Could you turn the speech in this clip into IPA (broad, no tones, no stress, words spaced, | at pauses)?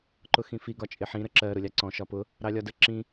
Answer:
ǃʊxĩfi ɡɒt͡ʃʼɪħĩ ɾəǁɜ ɾʊlʲɑǀɔ̃ ʃɒpʊ | ɾɑlʲɒdə ǁĩ